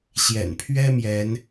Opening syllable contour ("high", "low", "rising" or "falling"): low